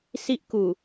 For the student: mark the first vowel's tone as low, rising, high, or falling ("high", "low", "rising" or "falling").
high